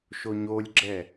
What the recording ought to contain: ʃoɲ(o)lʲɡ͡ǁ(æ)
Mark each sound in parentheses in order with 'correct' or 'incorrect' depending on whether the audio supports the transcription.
correct, incorrect

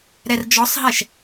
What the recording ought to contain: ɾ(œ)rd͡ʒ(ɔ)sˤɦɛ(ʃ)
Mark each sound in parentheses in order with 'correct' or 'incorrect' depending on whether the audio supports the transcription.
incorrect, correct, correct

